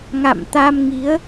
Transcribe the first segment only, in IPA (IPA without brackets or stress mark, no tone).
ŋ